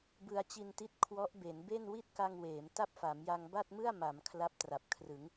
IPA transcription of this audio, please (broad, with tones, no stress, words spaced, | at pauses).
bɯ˧a̯t͡ɕi˧nti˦˥t̚ kʰwɔ˦˥ʔbe˩˦nbe˥˩n wi˥˩t̚ka˧ŋweː˩˦m ta˥˩p̚fa˩˦mja˧ŋ ba˥˩t̚mɯ˥˩a̯ma˩˦m kʰla˦˥p̚tra˨˩p̚kʰrɯ˩˦ŋ